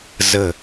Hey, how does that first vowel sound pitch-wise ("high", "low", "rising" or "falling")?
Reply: falling